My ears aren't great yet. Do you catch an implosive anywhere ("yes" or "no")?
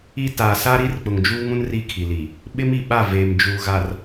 yes